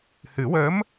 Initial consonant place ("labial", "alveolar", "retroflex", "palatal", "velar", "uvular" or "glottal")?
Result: glottal